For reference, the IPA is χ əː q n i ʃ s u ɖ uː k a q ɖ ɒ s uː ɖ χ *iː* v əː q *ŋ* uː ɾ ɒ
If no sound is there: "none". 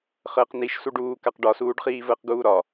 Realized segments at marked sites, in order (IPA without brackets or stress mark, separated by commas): iː, ɡ